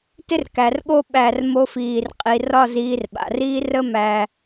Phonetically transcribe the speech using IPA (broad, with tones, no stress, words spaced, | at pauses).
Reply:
tɪ˥rkæ˩˧rɠo˥˧ ɓæ˧˩r mo˥fiː˧˩rqʼi˧ rɒ˥˧ziː˧rɓa̰˩˧riː˥ rə˥mæ˧